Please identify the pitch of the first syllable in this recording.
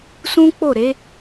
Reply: high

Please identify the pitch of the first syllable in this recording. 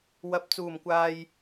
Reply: low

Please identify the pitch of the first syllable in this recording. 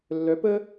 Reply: rising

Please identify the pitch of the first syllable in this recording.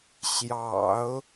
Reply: low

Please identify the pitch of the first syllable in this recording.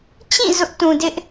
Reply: falling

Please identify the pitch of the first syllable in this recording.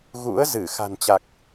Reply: rising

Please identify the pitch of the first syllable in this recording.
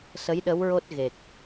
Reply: rising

